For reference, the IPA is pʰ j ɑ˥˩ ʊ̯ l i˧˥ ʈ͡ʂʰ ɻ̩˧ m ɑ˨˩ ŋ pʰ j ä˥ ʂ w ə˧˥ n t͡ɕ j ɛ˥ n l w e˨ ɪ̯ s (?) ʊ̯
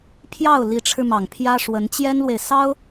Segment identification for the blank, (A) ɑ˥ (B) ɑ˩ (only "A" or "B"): A